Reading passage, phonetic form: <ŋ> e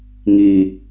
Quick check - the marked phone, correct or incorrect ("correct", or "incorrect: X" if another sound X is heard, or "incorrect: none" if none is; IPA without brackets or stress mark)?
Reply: correct